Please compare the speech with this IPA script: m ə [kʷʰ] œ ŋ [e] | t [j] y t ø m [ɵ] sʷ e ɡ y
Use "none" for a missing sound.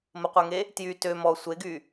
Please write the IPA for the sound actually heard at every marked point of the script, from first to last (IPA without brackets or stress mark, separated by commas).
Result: qʷ, e, j, ɔ